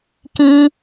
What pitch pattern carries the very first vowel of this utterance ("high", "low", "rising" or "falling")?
high